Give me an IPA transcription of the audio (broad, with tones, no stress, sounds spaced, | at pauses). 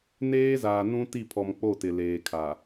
n eː˦ z aː˨ n ũ˦ t i˦˨ pʰ ɔ˨ m k͡p o˦˨ t ɪ˨ l eː˨ kʰ a˨